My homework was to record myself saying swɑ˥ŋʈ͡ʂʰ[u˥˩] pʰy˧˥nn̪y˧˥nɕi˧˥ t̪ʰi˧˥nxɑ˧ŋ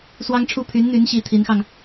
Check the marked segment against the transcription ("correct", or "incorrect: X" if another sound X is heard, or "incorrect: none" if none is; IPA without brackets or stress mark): incorrect: u˥